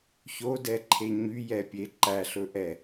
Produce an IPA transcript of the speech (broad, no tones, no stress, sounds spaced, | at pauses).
ç o d ɛ ǃʰ e ɲ y j ɛ pʲ e ǃ æ ɬ ɵ ʔ ɛ